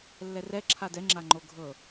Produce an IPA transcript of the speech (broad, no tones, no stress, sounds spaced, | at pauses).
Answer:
lː ɛ r ɛ ǁʰ a d ɛ ŋ͡ǁ a ŋ͡ǃ o ɡʱ ɤ